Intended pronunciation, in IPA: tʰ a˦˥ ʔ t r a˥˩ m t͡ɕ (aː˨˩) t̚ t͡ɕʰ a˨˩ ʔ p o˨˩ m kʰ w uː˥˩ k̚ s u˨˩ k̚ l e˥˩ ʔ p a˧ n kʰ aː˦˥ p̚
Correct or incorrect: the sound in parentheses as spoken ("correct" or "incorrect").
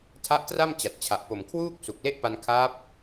incorrect